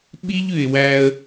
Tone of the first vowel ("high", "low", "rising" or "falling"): high